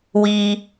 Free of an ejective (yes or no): yes